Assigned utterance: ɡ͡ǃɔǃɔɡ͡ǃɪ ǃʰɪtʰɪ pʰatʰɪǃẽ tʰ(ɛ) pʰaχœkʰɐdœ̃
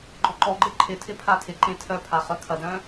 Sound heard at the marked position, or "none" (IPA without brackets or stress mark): œ